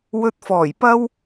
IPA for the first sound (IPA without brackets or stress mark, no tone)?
w